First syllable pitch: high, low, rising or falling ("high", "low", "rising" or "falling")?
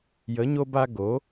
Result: rising